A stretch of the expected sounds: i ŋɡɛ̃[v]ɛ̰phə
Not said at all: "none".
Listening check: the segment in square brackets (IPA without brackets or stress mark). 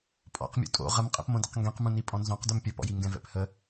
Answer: v